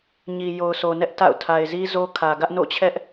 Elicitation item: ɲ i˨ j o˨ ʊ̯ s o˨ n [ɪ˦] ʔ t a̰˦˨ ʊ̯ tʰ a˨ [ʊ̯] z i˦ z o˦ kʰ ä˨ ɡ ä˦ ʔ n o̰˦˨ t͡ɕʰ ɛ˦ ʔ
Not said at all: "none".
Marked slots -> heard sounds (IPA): ɛ˦, ɪ̯

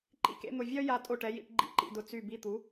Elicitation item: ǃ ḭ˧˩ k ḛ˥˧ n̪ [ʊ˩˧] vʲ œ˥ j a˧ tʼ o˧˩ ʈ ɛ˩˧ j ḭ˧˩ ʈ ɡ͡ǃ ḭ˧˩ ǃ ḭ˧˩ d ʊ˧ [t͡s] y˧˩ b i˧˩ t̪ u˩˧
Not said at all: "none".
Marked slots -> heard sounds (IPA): ʊ˧˩, t͡s

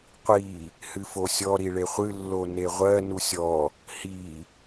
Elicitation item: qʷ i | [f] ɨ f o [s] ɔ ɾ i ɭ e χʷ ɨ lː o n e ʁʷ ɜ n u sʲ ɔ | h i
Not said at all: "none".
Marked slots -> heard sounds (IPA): h, sʲ

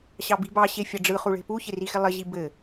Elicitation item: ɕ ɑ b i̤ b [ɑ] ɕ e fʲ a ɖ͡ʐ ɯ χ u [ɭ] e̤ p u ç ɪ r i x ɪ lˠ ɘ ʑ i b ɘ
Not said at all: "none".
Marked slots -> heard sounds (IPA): ɑ, ɭ

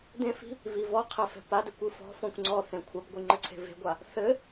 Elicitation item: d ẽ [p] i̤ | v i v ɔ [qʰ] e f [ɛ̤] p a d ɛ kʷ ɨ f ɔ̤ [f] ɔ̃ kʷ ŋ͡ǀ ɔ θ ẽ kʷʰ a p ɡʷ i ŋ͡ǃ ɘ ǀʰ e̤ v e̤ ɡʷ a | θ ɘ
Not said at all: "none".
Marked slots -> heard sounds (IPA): f, qʰ, ɛ̤, f

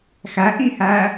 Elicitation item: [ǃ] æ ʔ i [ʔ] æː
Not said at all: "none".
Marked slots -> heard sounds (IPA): x, h

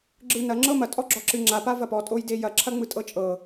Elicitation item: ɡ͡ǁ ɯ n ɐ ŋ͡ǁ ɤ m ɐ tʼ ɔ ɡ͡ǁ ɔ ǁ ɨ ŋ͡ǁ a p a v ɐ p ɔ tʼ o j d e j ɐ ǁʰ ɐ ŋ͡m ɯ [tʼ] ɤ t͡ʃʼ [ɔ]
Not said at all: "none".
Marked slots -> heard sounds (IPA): tʼ, ɤ

